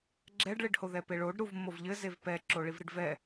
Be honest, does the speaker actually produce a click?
yes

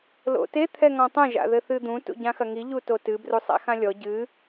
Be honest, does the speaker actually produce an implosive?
no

